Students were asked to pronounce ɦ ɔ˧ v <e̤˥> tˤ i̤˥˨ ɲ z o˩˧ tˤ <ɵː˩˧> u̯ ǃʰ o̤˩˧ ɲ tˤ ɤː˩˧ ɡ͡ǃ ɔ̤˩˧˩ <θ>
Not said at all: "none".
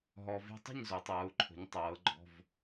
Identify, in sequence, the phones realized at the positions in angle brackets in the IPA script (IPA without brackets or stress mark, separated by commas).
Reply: e̤˥, ɤː˩˧, v